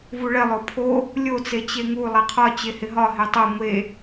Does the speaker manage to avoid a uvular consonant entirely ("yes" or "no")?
no